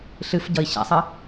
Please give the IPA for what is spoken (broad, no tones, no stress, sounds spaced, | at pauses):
ɬ ɨ f ɟ ʌ i̯ ɕ a̰ sˤ ɜ